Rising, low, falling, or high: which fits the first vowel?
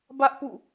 high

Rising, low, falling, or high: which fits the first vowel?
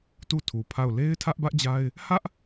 falling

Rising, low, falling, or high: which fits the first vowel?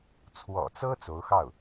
low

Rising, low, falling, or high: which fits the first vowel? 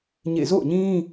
falling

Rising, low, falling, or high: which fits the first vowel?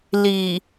low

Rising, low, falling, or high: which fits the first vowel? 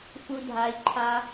high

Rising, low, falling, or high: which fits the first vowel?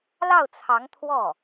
falling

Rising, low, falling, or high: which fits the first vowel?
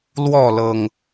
falling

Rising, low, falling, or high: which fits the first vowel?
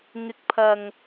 rising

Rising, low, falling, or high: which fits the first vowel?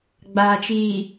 low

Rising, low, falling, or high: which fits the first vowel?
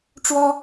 high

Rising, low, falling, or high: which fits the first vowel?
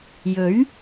rising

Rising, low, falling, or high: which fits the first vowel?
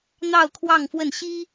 falling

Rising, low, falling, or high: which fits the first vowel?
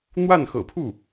falling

